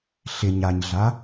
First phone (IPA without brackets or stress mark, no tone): ɬ